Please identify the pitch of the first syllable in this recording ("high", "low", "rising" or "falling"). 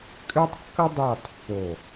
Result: high